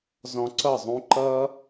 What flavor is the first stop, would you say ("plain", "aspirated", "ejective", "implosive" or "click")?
click